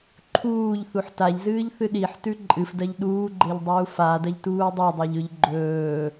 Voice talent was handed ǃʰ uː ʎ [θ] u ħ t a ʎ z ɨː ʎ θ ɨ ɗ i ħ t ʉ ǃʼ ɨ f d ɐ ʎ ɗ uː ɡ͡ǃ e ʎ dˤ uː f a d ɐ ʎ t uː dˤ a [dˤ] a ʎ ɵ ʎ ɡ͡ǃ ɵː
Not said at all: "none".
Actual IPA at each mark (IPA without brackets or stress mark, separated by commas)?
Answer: θ, dˤ